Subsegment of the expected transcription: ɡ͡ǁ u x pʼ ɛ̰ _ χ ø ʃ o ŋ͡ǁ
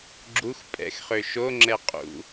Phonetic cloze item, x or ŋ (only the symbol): x